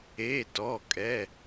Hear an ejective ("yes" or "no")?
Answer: yes